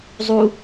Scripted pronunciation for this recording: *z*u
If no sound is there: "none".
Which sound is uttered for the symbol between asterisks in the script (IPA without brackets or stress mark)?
zˤ